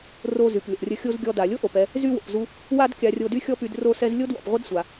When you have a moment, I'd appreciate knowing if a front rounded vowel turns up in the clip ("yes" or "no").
yes